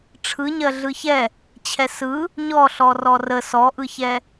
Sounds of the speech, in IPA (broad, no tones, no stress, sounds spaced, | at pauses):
ʈ͡ʂʰ ɯ ɲ ɜ ɮ ɯ ç ɛ | t͡ɕʰ ɛ s ɯ | ɲ ɔ ɬ ɔ r ɔ r ə s ɔ ʔ ɯ ç ɛ